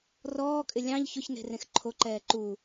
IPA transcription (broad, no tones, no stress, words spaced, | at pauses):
rɔːkʼɪ lʲɑ̃ʎ çʊçne̤rẽx ǃʰoǃɛː ǃu